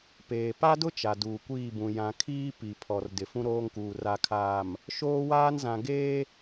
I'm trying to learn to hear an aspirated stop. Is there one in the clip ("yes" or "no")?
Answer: yes